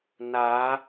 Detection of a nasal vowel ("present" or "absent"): absent